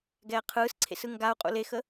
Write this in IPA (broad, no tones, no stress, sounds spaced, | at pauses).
ɡ ɛː qʰ ɯː s ǀʰ ḛ s ɯ ŋ ɡ a u̯ qʼ ṵ l e x ə